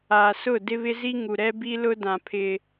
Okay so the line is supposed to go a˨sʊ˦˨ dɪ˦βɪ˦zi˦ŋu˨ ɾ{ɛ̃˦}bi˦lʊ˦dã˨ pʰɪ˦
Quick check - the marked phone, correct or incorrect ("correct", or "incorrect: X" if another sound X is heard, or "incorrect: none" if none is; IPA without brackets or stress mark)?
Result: incorrect: ɛ˦